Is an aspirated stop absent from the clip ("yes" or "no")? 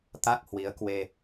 yes